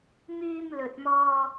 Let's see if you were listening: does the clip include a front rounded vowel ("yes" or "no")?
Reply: yes